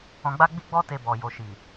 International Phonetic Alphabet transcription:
ɔ̃˨ ɡ͡b a˧ ɡ͡b i˦ ɡ͡b ɔ˦ t e˧ b ɔ˨ j o˨ ʃ i˨

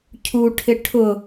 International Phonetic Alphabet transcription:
cʰ u ʈʰ ɪ ʈʰ ʊ

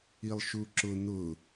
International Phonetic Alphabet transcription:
i lˠ ʃ u ǁ ʊ n̪ ʊ

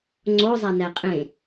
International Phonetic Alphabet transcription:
ŋ͡ǀ o zˤ æ n æ qʼ ẽ

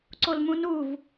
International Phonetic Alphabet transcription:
ǀ o l m ũ n u v

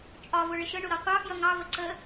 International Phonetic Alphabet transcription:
t͡ʃʼ ɒ v ʊ ɭ ɪ ʃ ə ɳ ʊ ɾ ɒ qʷ ɑ f j ʌ ŋ ɑ v ə ǀ ə

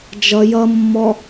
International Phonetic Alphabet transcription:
d͡ʒ ʌ j ʌ mː ɔ

